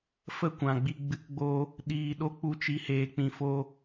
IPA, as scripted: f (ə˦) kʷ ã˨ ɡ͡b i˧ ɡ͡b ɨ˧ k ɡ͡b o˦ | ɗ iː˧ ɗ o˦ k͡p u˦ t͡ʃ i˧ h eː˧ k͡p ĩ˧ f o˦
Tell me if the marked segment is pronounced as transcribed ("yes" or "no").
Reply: yes